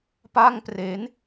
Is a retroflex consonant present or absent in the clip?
absent